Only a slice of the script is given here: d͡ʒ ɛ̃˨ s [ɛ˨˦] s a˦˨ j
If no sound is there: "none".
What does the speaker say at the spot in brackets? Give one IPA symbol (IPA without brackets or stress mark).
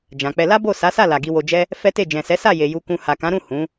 ɛ˨˦